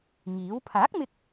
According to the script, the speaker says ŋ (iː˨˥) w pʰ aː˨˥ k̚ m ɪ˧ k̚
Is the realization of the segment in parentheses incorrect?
no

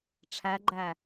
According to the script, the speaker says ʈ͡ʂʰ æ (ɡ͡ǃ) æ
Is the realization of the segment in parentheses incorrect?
no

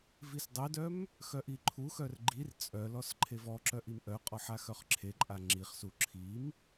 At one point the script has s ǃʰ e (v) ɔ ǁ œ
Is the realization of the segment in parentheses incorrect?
no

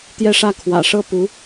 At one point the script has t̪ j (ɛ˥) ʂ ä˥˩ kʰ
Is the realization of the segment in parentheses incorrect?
yes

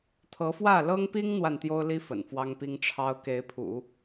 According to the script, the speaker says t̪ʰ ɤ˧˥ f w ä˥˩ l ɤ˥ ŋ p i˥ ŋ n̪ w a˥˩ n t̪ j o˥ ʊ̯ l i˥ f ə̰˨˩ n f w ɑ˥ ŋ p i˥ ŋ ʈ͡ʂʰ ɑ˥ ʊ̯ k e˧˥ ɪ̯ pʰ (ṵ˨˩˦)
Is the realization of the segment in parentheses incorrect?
no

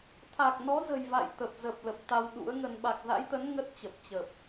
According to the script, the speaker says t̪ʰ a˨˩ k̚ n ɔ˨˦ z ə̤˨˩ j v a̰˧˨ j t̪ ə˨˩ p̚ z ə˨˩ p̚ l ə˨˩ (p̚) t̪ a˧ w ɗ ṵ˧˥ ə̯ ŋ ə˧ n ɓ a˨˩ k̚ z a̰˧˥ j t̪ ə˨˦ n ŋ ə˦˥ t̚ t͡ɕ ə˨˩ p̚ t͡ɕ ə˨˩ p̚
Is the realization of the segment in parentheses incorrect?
no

